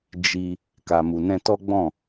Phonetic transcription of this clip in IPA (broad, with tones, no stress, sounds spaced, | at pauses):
d͡ʒ i˧ | k a˨ m u˨ n ɛ̃˧ t ɔ˦ ɡ͡b ɔ̃˦˨